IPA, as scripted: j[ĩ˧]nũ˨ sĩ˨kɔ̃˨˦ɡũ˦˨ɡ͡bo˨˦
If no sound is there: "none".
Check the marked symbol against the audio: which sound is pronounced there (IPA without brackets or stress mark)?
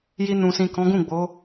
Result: i˧